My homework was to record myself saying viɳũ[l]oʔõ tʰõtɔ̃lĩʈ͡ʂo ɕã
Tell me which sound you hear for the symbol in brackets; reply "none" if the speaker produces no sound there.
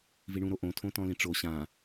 ɾ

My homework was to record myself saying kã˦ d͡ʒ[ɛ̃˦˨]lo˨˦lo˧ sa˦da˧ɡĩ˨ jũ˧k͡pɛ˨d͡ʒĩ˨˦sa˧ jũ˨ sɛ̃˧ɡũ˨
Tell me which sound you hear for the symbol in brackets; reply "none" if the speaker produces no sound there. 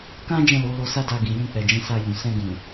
ɛ̃˦˨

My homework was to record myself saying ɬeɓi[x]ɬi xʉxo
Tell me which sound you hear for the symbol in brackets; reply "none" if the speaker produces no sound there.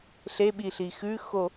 none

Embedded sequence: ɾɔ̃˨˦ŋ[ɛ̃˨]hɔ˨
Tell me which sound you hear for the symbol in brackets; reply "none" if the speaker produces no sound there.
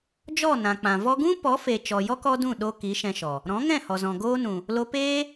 ɛ̃˦˨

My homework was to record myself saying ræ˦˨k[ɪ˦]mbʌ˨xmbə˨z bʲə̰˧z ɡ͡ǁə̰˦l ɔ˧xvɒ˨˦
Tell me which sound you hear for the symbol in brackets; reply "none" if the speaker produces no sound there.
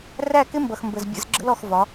ɪ˦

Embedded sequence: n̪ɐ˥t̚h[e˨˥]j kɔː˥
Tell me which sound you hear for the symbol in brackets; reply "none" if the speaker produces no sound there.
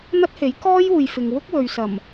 e˨˥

